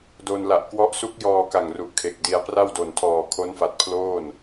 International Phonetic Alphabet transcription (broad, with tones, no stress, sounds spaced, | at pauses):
d o˧ n l a˨˩ ʔ k w ɔ˦˥ ʔ s u˦˥ k̚ j ɔː˧ k a˨˩ ŋ r u˨˩ ʔ kʰ e˨˩ k̚ d i˧ a̯ p r a˥˩ w d o˨˩ n tʰ ɔː˨˩ kʰ o˦˥ n f a˨˩ t̚ pʰ l oː˥˩ n